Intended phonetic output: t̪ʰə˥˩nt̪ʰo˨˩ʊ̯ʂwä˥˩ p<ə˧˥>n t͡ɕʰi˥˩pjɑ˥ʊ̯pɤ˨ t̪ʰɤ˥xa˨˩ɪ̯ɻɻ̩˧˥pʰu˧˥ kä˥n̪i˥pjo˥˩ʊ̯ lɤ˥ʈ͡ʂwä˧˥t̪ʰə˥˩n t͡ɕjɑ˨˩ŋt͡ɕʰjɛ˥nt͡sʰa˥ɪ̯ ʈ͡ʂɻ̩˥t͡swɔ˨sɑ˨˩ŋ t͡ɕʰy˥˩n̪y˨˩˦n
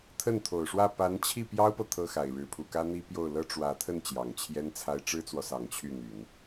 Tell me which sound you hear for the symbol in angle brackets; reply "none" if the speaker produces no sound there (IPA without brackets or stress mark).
a˧˥